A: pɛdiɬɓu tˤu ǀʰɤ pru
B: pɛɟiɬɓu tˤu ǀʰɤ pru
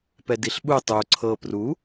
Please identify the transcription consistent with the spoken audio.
A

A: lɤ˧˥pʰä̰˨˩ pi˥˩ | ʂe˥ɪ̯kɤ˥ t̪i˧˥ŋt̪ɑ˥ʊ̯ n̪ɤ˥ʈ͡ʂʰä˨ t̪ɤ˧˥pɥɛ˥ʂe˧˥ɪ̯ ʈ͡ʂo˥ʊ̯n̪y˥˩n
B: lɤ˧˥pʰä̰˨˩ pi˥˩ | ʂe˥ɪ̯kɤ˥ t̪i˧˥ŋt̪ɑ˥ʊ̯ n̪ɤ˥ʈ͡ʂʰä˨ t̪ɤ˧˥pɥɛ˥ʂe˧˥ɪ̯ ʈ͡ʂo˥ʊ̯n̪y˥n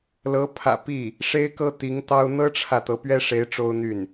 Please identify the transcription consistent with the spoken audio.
A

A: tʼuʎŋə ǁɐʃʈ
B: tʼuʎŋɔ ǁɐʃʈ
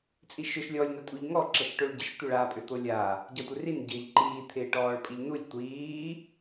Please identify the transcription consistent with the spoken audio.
B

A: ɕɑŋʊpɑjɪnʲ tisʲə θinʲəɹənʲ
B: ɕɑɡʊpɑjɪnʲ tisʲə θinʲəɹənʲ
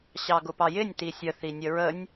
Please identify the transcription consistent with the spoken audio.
B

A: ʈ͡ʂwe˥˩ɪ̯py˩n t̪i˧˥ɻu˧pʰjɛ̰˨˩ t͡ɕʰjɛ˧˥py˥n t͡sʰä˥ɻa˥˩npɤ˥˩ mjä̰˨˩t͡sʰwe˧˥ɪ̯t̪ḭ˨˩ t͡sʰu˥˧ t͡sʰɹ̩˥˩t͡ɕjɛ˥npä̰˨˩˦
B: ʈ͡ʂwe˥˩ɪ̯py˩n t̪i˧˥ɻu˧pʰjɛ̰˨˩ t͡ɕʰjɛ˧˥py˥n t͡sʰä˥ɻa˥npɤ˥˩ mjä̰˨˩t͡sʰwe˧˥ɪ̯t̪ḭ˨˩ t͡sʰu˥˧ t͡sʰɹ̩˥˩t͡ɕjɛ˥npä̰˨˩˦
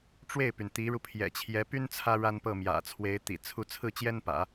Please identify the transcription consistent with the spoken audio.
B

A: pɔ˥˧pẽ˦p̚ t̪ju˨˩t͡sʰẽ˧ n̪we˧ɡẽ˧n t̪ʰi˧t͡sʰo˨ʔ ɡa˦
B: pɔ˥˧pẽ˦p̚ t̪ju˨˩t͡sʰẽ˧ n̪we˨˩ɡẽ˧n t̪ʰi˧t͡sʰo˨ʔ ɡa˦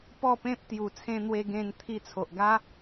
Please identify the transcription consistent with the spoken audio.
A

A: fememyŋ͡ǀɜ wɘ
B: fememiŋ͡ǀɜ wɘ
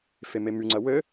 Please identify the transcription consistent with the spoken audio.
A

